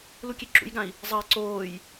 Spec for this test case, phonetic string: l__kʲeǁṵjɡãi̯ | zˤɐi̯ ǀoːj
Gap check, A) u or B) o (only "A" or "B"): A